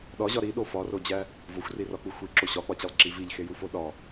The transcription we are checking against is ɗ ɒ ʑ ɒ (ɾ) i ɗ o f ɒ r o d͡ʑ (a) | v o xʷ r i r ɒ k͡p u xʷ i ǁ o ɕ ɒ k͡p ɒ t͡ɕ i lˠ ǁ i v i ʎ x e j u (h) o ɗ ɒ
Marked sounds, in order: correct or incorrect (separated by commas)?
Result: correct, incorrect, incorrect